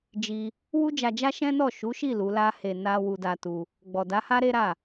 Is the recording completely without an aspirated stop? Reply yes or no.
yes